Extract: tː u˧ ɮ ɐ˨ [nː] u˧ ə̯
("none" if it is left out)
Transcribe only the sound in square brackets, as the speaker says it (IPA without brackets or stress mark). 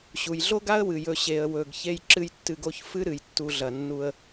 nː